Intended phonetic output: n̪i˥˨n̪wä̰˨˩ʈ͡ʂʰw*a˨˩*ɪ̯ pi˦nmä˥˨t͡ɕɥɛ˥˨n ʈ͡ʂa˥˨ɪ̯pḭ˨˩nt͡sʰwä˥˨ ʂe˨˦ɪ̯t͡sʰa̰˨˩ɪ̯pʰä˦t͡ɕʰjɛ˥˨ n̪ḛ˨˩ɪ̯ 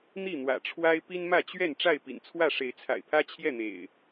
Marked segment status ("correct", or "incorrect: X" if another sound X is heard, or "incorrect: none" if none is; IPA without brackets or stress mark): incorrect: a˦